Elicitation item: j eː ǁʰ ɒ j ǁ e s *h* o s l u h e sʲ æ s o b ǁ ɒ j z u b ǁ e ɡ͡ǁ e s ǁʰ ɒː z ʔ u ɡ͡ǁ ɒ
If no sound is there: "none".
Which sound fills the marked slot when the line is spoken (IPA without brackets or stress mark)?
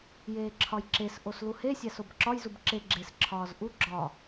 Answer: ʔ